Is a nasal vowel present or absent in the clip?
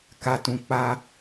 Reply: present